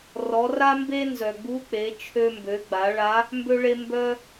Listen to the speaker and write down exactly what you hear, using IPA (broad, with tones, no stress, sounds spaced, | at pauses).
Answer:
r ɔ˩˧ r a˥ m b e˥ n z œ˩ ɡ͡b u˧˥ k͡p e˩˧ t͡ʃʰ ø˧ m b ø˩˧ ɡ͡b a˩˧ ɭ a˧˥ | m b ø˧ ɭ e˧ m b œ˥